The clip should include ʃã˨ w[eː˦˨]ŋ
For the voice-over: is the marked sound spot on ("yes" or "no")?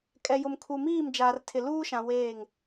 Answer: yes